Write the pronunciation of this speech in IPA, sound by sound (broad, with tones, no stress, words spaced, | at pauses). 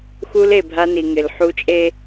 xu˦le˨bʱa˦ni˨ ŋɪ˨lħu˦ t͡ʃʼe˦